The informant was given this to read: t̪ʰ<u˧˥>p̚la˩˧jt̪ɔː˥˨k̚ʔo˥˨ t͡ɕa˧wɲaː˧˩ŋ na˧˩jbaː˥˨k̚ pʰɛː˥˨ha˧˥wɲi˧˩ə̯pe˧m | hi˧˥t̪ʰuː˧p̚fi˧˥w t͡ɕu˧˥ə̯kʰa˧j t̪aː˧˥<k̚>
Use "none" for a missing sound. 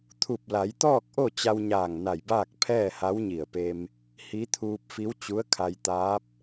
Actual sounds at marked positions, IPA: u˧˩, p̚

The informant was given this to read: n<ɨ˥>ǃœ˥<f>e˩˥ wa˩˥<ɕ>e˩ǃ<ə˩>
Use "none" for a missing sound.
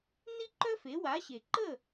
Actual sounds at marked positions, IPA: i˥, f, ɕ, ə˥˩

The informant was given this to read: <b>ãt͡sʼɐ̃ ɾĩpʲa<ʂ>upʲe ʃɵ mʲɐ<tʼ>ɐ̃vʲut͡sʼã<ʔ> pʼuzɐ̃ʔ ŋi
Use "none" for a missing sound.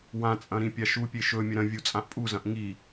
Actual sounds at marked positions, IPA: w, ʃ, ɾ, ʔ

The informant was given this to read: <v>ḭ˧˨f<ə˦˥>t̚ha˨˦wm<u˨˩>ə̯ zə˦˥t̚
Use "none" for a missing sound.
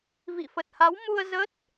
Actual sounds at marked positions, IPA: v, ə˨˩, u˧

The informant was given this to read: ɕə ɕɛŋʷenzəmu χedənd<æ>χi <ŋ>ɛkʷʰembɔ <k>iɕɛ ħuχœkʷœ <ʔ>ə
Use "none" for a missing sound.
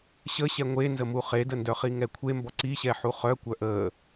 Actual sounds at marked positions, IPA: œ, ŋ, ǀ, ʔ

